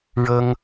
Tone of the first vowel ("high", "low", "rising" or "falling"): high